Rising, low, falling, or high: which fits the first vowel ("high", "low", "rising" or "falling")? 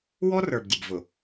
high